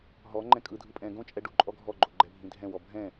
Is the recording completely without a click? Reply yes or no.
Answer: no